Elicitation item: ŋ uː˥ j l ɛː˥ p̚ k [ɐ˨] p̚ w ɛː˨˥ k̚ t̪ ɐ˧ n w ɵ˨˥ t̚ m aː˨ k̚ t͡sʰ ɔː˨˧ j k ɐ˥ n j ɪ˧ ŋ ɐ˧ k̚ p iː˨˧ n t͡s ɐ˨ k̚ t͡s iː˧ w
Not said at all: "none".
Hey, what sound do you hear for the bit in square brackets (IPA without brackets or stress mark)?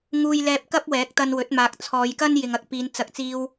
ɐ˥